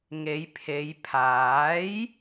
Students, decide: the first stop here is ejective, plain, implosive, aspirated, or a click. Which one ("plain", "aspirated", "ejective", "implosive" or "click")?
aspirated